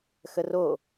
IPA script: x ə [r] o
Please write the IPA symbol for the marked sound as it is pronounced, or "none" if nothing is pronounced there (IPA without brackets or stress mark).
r